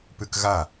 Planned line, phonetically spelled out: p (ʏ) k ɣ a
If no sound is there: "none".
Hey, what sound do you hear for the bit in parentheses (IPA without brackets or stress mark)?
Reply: ʏ